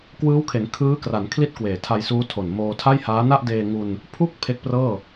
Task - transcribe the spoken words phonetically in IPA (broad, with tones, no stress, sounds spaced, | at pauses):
k w ɯː˦˥ w kʰ e˩˦ n kʰ ɯː˦˥ k r a˩˦ n kʰ l i˥˩ t̚ k w eː˨˩ tʰ a˧ j s uː˦˥ tʰ o˨˩ n m oː˧ tʰ a˥˩ j h aː˦˥ n a˥˩ ʔ d eː˧ ŋ u˧ n | pʰ u˥˩ k̚ pʰ e˦˥ k̚ p r ɤː˥˩